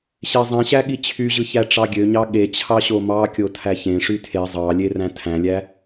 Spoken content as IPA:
ɕezˤẽɕæ ɠit͡ɕʰyʑɯ çæʈ͡ʂɑɡʲøɲɑ ɠet͡ɕʰɑ ɕomɑkʲo tʰæçẽʂy tʰe zˤɑlʲe ræ̃tʰæ̃lʲæ

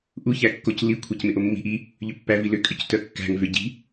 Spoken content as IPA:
ʔuçæ kːoclikʷʰæc mɪʔomːi̤ʔ i | ʎʏpːæv ilʏkʼʏc tœkːæ̤ŋvʏ ɟi̤

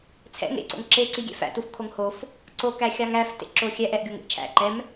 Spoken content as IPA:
t͡sʰɛ̰ŋ ḛǀo̰ŋǁe ǀiɡʲɛ̰fæ̰tuf kʰoŋhof | ǀokæ xʲɑŋæf tḛǁoxʲɛʔ ɛʔ ɡʲoŋḛʔt͡ʃʰæ̰ ǃɛm

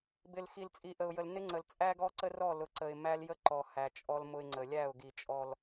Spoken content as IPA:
bɪ˨lxi˨lt͡sʼi˨ʔə˨ʊ̯ jə˨lnɪ˦ŋ͡ǀə˨l t͡sʼæ˦ɡɔ˦ǀə˦ rɔ˦˨lʊ˨ ǀə˨ɪ̯mæ˦ljə˦ ǃɔ˨ hæ˨t͡ʃʼɔ˦lmʊ˦ɪ̯ŋ͡ǀə˨ lʲæ˦˨ʊ̯ ɡi˨t͡ʃʼɔ˨l

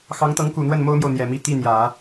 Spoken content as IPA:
xɑ˧˥ŋt̪ɤ˧˥ŋku˨˩n̪wə˥˩n mo˥ʊ̯mjo˨ʊ̯ n̪jɛ˨˩mi˥˧ t̪i˥˩ n̪jä˨˩˦

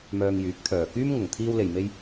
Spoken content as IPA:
mœː˧ŋjyː˨˥k̚ t̪ʰœː˨kyː˥mŋʊ˨ŋ t̪ʰiː˧wle˨jme˧j

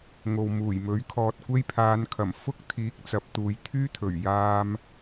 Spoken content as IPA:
ŋo˨wmuː˨˩j mɵ˨˥ɥkʰɔː˧t̚ kʷe˥jpʰaː˨˧nkʰɐ˨˩m fʊ˥k̚t̪ʰiː˨˥k̚ t͡sɐ˨˥p̚t̪uː˨j t̪ʰyː˥t̪ʰɵ˨˩ɥ jaː˧m

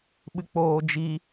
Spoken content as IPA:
ɓɨk͡poːd͡ʒi

